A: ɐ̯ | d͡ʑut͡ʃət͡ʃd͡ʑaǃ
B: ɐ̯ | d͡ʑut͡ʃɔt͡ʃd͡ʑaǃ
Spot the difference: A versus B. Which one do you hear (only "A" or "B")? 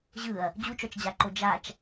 B